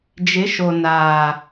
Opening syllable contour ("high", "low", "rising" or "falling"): rising